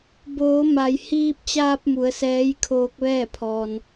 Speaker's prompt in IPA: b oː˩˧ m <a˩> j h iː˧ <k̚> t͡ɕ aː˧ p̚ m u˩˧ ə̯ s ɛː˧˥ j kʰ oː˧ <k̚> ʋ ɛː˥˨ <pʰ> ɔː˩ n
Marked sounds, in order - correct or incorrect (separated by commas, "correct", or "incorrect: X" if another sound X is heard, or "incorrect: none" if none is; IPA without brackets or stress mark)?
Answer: correct, incorrect: p̚, correct, correct